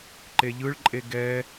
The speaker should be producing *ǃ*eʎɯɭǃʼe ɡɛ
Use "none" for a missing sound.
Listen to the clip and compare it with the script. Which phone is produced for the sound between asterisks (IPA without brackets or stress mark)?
ǃ